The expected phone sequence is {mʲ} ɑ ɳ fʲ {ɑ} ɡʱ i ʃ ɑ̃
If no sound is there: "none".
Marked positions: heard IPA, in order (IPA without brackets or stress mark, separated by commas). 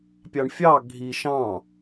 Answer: pʲ, ɑ